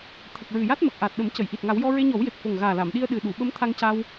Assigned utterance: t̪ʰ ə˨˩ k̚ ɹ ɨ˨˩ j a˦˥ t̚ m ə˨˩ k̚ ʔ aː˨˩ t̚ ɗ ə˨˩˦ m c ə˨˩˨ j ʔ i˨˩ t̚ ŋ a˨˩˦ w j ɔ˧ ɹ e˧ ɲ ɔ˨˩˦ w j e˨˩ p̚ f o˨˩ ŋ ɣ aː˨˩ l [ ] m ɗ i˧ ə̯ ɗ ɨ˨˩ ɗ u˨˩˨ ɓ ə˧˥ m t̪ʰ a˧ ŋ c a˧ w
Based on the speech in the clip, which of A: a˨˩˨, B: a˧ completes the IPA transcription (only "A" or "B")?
A